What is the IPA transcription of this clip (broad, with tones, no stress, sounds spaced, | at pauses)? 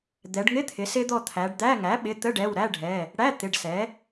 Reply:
d̪ ɛ˩˧ ɖ ŋ ɪ˧˥˧ t̪ʰ ɪ˩˧ s ɪ˦˥ d̪ ɔ˦˨ t̪ʰ æ˩˧ ɖ d̪ æ˧˥˧ ŋ æ˩˥ ɓ ɪ˩˧˩ t̪ ə˧˥˧ ɖ ɛ˩˧˩ w ɾ æ˧˥˧ ɖʱ ɛ˩˧˩ | ɽ æ˧˥˧ t̪ ɪ˩˧˩ ɖ s ɛ˩˥